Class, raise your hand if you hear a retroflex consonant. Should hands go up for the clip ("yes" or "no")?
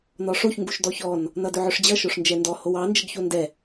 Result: yes